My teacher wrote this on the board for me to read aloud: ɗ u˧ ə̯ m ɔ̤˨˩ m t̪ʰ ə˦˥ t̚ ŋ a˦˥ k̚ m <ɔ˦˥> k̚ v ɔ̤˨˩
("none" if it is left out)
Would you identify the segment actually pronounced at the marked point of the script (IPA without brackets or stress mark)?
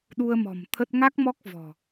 ɔ˦˥